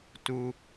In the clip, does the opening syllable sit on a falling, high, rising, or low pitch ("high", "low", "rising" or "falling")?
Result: low